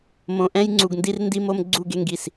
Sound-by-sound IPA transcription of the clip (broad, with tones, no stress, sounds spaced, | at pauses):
m õ˨ ʔ ɛ̃˦ j ŋ͡ǀ u˨ ɡ n d i˦ r n d i˦ m o˦ m ɡ͡ǀ u˦˨ ɡ e˦ ŋ ɡ i˨ s